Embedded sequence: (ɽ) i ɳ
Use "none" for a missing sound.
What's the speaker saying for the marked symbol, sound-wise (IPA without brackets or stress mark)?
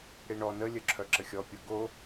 ɽ